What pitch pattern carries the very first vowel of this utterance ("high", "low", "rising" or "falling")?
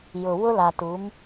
low